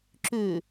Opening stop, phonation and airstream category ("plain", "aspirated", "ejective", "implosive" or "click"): click